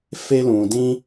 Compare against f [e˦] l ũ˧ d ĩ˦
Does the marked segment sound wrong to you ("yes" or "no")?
no